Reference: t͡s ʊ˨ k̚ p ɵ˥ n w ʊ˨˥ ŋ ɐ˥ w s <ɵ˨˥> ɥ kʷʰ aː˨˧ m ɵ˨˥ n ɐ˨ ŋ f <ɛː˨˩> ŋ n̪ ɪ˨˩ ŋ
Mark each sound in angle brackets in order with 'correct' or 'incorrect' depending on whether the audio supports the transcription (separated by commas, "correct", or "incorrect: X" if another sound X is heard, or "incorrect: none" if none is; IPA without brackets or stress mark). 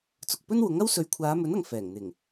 correct, correct